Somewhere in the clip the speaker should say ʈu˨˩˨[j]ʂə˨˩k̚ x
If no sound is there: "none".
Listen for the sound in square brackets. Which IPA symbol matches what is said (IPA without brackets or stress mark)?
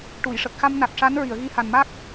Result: j